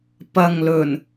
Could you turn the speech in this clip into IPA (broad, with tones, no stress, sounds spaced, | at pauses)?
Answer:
p ɐ˨ ŋ l ɵ˨˩ n